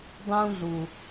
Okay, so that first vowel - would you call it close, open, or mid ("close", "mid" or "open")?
close